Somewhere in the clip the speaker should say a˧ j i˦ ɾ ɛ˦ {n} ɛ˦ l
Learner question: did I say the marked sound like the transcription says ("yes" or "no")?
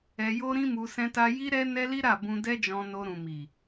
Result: yes